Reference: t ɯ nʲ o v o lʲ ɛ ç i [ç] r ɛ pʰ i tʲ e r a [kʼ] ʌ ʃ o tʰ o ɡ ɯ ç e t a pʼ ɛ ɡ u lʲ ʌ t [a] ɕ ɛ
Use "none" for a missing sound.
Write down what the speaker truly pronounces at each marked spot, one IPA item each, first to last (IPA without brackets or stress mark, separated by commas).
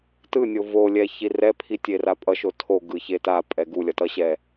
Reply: none, pʼ, ʌ